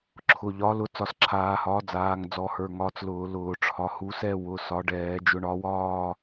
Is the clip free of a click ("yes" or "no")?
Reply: no